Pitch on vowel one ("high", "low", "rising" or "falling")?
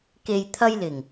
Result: low